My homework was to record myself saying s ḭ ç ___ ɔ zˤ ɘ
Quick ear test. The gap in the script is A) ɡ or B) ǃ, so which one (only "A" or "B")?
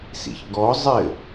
A